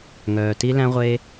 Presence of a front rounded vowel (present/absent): present